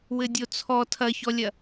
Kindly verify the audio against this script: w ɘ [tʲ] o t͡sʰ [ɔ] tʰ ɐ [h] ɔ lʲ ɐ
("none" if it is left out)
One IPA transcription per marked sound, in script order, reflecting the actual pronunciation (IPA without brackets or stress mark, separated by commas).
dʲ, ɔ, ç